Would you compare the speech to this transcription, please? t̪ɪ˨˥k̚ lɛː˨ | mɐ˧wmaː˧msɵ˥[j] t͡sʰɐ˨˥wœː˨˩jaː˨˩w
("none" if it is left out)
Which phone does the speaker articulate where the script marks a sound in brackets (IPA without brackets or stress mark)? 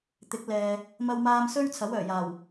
ɥ